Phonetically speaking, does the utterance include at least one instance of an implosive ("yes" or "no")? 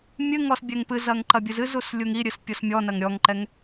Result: no